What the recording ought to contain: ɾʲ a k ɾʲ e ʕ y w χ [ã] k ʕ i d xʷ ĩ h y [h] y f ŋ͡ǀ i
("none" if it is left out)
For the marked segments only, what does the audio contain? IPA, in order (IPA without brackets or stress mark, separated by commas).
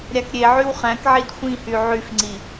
æ̃, ʕ